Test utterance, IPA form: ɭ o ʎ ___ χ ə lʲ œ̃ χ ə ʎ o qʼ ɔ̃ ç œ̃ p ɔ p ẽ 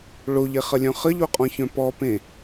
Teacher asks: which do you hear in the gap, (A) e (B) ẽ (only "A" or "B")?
A